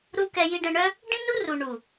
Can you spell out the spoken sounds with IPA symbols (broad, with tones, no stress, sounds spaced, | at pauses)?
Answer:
ɾ u˧ k ɛ˧ j i˧ ɖ ɛ̃˧ ɳ œ˦ | ɖ ĩ˦ n u˦ r u˨ ɳ u˨